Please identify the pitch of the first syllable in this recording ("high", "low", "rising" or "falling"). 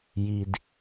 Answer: low